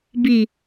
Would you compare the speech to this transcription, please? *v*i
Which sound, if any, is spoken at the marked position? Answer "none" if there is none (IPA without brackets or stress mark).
b